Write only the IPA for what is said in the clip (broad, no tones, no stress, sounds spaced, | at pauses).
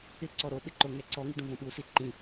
ɪ ǀ ɔ ɾ o ɓ ɪ ǃ o ŋ ɛ ǀ ɔ ŋ i ɖ ũ v õ ɓ u s i ǃ ĩ